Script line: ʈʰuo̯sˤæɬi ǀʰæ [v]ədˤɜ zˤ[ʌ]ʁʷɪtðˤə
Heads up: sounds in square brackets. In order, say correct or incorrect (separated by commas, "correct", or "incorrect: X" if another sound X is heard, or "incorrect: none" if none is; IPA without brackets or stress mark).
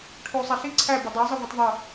incorrect: b, correct